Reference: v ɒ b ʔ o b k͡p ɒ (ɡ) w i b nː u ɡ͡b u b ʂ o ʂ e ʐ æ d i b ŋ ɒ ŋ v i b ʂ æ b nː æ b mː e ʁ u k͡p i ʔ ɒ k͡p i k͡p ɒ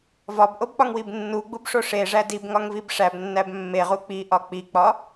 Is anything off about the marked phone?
yes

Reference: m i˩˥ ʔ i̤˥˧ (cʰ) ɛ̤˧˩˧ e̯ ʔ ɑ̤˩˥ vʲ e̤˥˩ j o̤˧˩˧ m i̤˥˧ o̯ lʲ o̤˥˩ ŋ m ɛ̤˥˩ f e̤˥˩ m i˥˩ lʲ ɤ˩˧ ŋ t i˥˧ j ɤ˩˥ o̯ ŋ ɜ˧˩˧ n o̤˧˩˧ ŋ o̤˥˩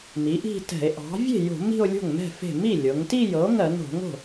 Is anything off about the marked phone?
yes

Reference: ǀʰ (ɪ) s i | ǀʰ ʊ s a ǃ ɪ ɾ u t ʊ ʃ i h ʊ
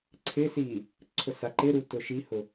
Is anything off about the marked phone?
no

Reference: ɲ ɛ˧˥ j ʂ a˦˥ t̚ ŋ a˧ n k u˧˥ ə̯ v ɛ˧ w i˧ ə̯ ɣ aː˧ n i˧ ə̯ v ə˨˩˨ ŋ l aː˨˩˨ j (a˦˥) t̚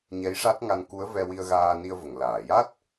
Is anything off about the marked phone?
no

